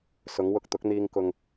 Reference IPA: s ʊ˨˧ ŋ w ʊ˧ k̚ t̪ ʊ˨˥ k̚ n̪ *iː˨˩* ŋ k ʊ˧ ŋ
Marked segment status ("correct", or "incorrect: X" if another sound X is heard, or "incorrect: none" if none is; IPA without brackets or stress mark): incorrect: iː˧